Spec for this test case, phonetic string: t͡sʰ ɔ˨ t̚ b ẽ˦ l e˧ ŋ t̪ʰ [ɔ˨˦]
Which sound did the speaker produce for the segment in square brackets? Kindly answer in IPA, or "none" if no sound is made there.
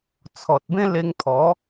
ɔ˨˦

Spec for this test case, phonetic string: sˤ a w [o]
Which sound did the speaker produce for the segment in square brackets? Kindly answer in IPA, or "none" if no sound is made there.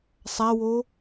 o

